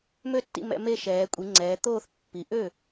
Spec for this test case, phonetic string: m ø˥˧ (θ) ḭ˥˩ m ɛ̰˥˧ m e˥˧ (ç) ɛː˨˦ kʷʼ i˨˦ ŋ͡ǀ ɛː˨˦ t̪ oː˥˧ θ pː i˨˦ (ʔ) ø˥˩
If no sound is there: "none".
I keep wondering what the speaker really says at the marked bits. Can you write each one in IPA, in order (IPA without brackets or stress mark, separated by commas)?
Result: tː, ʃ, ʔ